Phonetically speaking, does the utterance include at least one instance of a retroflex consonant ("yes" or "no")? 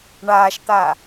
yes